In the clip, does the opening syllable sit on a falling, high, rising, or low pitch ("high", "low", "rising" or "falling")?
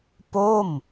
falling